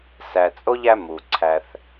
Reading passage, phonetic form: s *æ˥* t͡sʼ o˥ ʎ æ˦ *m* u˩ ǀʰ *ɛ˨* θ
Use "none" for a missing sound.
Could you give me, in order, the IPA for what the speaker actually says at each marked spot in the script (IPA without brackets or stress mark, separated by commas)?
æ˨, m, æ˨